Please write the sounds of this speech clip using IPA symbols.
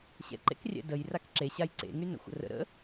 ɕ ɛ̰ ǃ ḛ k rʲ ɛ̰ d ə j r a k ǁ e ɕ a j ǀ ḛ ŋ y n ə̰ xʷ ə̰ r ə̰ ɾ ə̰

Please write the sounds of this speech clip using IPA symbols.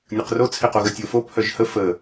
nʲ ɯ q r o t͡sʰ e q o ɣ ə tʲ o f o pʰ œ ʒ h ə f ə

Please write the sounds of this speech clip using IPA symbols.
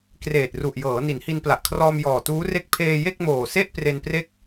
k r eː˨˩ t̚ r u˨˩ ʔ j ɤː˩˦ n i˩˦ n h i˧ n p l a˨˩ ʔ kʰ r ɔː˧ m j ɔː˨˩ t uː˦˥ r e˥˩ k̚ pʰ eː˧ j e˥˩ k̚ m oː˨˩ s e˥˩ ʔ p r e˧ n p r e˥˩ k̚

